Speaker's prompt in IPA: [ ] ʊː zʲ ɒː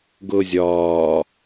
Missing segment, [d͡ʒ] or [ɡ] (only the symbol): ɡ